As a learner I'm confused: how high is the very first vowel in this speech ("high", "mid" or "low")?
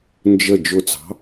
mid